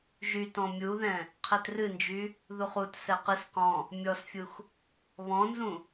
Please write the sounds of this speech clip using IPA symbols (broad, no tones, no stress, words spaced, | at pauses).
ʒytɔ̃ mʲuðɛ̃ | qʰɛtrɨnd͡ʒy | ðuχut sɛqɨs qɔ̃ | mʲɔsfʲux | βɔ̃nzũ